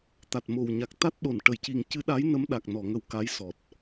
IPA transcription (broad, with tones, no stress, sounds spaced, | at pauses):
t̪ a˨˩ t̚ m o˨˩ w ɲ a˨˩ k̚ t̪ a˦˥ t̚ ɗ o˨˩˨ n ʈ ə˨˩˨ j c i˨˩ ŋ c ɨ˧˥ ɗ a˧˥ j n ə˧˥ m ɗ a˨˩ k̚ n ɔ˨˩˨ ŋ ə˨˩ w k a˧˥ j s ɔ˨˩ t̚